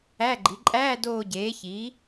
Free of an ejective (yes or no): no